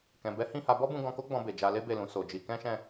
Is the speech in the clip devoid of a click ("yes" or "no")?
yes